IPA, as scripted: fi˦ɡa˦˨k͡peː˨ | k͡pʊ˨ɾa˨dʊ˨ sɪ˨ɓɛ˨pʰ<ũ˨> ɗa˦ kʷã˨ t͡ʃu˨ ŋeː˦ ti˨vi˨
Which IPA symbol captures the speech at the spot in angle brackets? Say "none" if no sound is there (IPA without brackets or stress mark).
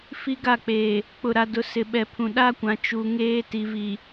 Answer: ũ˨